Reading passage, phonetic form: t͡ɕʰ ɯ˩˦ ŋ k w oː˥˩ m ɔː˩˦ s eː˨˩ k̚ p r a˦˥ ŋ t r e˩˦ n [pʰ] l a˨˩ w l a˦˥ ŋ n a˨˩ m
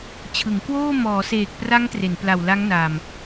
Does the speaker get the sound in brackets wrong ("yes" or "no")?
yes